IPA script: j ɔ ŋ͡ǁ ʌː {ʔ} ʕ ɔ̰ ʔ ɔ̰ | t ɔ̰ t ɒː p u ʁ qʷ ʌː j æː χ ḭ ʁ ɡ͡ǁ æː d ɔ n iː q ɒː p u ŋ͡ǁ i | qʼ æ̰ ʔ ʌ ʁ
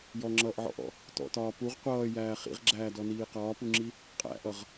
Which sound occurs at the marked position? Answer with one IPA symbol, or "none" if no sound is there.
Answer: ʔ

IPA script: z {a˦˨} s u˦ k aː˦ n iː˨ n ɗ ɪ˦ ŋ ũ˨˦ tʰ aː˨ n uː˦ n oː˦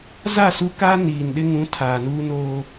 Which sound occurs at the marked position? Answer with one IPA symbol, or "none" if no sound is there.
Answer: a˦˨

